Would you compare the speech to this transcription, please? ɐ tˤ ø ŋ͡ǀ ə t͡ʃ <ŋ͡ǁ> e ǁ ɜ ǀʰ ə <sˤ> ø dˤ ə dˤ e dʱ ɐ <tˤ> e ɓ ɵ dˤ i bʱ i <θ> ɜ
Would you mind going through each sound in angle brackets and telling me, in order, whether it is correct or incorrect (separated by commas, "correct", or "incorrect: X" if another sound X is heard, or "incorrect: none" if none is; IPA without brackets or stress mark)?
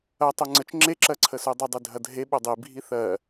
correct, incorrect: s, incorrect: dʱ, correct